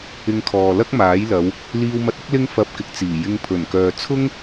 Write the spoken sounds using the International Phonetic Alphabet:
ɪ˧ŋkʰɔː˨ lɐ˥k̚maː˨˥j lɐ˨˧w | liː˧wmɐ˧t̚ʊ˥k̚ lɪ˥ŋfɐ˧p̚kɪ˨˥k̚ t͡siː˨˩ jɪ˧ŋpʰɵ˨˩nkœː˨ t͡sʰʊ˥ŋ

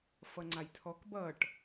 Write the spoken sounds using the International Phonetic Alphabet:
fʌŋ͡ǀajtʰɔk bʌʈ

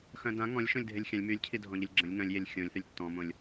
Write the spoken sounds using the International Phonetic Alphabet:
xœ̃dã ŋɔ̃lʲ ʃõlʲdʱelʲxʲãlʲ mylʲcʰi dʱɔ̃ʎəlʲɡ͡ǁə̃lʲ ŋœ̃lʲjelʲ xʲõlʲθylʲ tːɔ̃mõlʲ

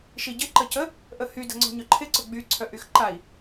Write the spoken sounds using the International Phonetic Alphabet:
ʃiɟɪ ǃəcə | ʔəhy də̤ŋ͡ǀɔ̤ɲœǃʰɪ ǀʊɡ͡by ǀʰœʔyxǃai̯

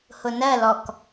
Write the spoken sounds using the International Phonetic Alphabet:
hʊnɜlɔk

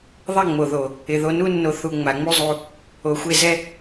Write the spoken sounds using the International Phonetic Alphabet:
ðˤɛ˦˨ŋ͡mo˨ðo˨ | ɪ˨ðo˧nu˦nːo˧ θu˧ ŋ͡ma˨ŋ͡mu˦ zˤu˧ | o˨xʷe˦˨zɛ˦

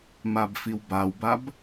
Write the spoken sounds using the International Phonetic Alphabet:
mabfiwbawbab

